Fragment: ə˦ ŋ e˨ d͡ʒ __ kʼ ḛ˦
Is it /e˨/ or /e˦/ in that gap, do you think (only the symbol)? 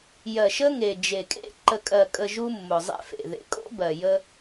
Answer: e˨